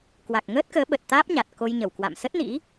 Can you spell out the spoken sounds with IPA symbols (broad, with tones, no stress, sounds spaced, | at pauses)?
k w a˨˩ k̚ ŋ əː˦˥ t̚ k əː˨˦ ɓ ə˨˩ t̚ t̪ aː˦˥ p̚ ɲ a˨˩ t̚ k o˧ j ɲ ə˧˩ w k w a̰˧˨ m s ə˦˥ t̚ n ḭ˧˥